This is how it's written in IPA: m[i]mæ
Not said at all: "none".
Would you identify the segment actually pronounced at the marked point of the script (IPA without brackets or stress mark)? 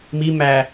i